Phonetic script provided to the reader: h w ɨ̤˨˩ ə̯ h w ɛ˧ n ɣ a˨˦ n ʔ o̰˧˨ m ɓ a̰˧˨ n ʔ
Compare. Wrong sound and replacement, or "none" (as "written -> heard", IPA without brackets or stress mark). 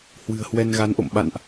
none